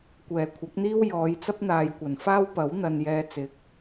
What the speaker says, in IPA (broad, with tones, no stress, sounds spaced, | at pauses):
kʷ ɛː˨˩ kʷʰ ɐ˨˥ k̚ n̪ iː˥ w j ɔː˨˧ j t͡s ɐ˥ p̚ n̪ aː˨ j kʷ ɐ˨˩ n f aː˥ w p ɐ˨˥ w n̪ ɐ˨ n j ɛː˧ t͡s ɪ˨˥ k̚